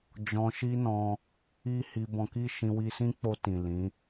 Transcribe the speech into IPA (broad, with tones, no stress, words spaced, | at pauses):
d͡ʒɔ̃˧ʃi˦nɔ̃˧ | i˧ hi˧bɔ̃˧ki˦ ʃĩ˧wi˧sĩ˦k͡po˧ tĩ˨lĩ˨˦